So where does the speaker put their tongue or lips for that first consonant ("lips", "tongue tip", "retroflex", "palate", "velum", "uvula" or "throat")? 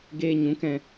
velum